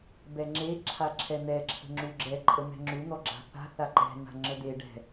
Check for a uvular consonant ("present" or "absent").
absent